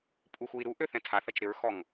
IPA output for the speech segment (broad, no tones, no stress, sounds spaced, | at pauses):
pʼ u x u i̯ ɾ u ʔ ø θ ɛ̃ tʰ a θ ɐ t͡ʃ ɾ ɪ ɹ x ɔ ŋ